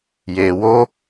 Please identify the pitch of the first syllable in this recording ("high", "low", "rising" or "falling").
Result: low